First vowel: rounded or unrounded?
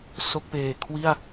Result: rounded